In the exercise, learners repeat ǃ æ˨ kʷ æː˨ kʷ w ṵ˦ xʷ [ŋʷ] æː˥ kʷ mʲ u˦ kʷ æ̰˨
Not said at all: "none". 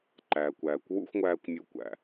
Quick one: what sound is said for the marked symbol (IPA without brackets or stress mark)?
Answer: ŋʷ